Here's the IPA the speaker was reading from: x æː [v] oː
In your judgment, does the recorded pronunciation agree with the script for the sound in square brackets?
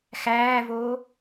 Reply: yes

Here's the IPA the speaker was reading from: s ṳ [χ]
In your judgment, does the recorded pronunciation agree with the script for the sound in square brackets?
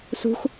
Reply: no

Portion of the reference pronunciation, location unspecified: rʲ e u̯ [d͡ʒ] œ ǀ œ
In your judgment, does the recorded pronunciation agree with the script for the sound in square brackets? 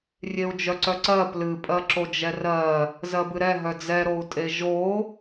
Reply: yes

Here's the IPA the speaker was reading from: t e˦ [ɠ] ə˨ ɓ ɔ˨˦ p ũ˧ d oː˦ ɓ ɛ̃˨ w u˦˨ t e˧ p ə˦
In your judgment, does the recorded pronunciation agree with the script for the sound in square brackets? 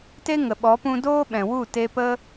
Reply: no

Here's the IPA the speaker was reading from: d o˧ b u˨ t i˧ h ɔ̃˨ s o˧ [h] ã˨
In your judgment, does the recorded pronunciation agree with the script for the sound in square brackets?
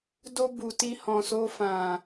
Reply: no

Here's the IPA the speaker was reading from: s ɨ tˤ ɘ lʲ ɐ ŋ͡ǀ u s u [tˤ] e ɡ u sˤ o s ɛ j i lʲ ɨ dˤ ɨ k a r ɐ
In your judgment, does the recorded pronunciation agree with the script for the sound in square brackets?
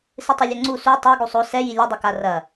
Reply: yes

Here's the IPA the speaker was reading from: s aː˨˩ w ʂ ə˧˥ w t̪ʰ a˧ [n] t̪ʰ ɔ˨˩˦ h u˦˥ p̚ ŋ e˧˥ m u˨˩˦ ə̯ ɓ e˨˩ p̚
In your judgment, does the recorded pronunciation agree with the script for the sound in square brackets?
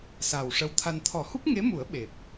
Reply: yes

